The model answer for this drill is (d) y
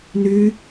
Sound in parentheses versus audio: incorrect: n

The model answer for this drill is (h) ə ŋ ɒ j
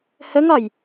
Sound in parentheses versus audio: correct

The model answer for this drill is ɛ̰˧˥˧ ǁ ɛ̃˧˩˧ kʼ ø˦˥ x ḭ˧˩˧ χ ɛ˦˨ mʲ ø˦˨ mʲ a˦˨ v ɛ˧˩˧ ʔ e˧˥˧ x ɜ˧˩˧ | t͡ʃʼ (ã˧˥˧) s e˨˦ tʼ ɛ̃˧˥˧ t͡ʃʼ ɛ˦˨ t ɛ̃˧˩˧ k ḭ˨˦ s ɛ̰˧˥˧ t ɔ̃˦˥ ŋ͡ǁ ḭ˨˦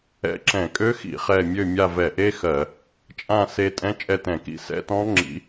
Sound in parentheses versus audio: incorrect: ã˦˨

